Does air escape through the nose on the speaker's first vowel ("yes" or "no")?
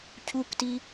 no